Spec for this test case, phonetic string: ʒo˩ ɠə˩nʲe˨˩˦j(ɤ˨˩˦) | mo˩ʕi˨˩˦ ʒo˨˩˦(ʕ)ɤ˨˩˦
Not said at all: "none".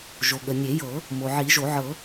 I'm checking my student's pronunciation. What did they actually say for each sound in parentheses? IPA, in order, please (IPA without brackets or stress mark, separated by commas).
ɤ˨˩˦, ʕ